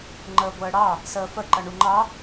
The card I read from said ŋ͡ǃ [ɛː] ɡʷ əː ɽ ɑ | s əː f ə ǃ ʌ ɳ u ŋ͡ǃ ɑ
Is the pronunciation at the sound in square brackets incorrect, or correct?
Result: incorrect